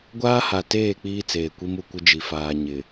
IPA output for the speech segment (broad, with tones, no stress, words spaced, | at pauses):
ɡʷaː˦ha˨teː˦˨ k͡piː˦t͡seː˨kʷi˦m u˨kʷɪ˦d͡ʒi˨faː˨ ɲɪ˨